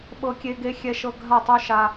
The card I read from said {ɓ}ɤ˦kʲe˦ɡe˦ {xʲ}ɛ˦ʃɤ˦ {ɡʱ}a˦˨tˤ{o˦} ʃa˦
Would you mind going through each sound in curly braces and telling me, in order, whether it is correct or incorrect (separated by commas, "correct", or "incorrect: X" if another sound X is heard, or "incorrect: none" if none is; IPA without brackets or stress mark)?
correct, correct, correct, correct